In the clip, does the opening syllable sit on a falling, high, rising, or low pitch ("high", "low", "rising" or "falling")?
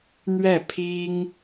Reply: falling